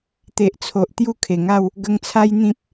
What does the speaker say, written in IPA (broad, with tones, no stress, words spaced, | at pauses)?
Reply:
t̪e˨ʔt͡sʰo˨ʔ t̪ju˥˧kʰe˨˩ŋa˥˧w | ɡə˧ŋt͡sʰa˦jn̪ĩ˦p̚